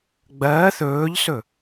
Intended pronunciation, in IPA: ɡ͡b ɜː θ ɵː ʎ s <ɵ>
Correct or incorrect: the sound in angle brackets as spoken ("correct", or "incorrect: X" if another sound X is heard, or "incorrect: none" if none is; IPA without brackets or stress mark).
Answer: correct